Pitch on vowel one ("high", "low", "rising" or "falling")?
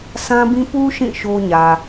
high